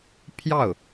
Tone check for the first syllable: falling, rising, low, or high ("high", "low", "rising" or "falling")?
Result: falling